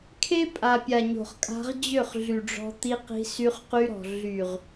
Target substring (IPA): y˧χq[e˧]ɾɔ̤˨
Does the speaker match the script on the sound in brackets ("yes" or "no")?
no